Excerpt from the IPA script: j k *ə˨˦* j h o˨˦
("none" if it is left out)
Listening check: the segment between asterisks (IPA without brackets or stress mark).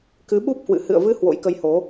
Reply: ə˨˦